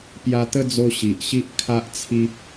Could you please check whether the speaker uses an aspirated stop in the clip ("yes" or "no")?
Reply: yes